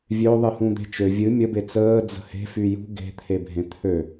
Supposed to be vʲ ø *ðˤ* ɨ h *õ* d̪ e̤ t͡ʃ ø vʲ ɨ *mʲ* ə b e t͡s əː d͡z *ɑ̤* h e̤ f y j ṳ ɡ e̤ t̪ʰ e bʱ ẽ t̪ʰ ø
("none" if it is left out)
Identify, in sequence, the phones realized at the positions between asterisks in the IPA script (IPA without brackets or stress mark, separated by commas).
ðˤ, ũ, mʲ, ə̤